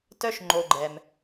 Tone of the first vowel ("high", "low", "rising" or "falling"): high